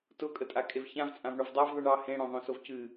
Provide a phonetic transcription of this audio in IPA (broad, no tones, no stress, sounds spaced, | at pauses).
t ʊ kʼ ə tʼ a kʼ e v ç ã v t͡sʼ ã v ɳ o v dˤ a v ðˤ ɨ ɳ ɑ h ẽ ɽ õ ðˤ õ s o v c ɨ